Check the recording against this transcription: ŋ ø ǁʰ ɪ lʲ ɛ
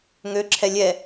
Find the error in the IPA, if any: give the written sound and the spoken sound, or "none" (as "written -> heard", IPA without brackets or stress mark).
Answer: ɪ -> ɛ